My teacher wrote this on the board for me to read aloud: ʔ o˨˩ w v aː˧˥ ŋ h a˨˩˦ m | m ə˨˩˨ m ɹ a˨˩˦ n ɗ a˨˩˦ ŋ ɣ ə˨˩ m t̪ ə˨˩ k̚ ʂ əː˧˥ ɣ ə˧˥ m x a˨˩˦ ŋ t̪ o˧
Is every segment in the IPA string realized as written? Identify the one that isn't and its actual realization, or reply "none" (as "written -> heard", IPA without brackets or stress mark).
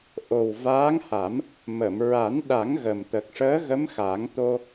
none